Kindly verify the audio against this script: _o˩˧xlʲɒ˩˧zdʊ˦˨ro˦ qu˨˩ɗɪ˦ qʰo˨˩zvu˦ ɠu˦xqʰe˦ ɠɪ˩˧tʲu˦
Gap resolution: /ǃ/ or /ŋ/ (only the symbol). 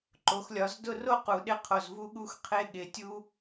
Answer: ǃ